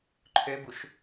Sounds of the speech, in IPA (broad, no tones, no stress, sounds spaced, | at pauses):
ǃʰ ø b u ʃ